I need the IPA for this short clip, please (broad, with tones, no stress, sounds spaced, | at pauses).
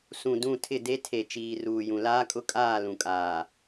s ũ˨ d ũ˦˨ tʰ ɪ˦˨ d e˦ tʰ e˨ t͡ʃ iː˨ r uː˨ j ũ˨ l aː˦ kʼ ʊ˦ kʼ aː˦˨ l ũ˨ kʼ aː˨